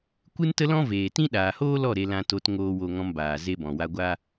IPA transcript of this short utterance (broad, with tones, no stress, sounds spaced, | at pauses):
kʷ ɨ˦ n t ə˦ l ɔ̃˦ v eː˨ t ĩ˦ ɗ aː˨ h oː˦ l ɔ˦˨ ɾ e˧ l ã˧ t o˧ t ŋ oː˨ w o˨ ŋ ɔ̃˧ m b aː˨ z e˧ b ɔ̃˨ w a˧ ɡʷ a˦